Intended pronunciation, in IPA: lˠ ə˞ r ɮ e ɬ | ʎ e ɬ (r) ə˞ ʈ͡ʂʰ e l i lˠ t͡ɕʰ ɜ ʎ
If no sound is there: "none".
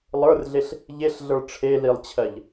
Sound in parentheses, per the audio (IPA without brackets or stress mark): ɮ